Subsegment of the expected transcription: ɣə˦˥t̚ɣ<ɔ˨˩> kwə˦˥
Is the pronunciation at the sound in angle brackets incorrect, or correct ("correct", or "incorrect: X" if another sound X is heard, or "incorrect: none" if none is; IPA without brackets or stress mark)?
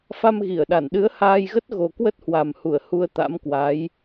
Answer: incorrect: o˨˩